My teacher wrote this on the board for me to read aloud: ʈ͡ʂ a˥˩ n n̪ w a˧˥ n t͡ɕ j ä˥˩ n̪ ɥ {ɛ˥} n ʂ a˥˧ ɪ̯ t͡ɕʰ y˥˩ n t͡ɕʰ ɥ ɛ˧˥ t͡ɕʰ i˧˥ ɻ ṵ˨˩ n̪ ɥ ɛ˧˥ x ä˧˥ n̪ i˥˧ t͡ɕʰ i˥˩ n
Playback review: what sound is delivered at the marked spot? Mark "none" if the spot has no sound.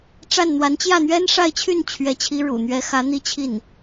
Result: ɛ˥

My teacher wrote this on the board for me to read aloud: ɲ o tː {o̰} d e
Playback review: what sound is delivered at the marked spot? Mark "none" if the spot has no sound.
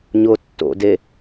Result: o̰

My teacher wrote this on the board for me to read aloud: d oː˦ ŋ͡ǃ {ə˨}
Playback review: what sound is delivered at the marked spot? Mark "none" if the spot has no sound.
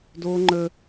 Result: ə˦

